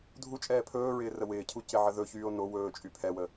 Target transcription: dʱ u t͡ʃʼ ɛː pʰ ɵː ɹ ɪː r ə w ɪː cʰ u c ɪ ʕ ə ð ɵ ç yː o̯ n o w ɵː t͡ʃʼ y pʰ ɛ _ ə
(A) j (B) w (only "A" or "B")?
B